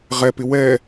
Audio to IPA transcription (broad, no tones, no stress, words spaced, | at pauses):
ʁɛpɪ wɛ